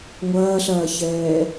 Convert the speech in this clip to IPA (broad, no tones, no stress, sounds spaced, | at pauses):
ŋʷ ɐː ɬ ɐː ç ɛː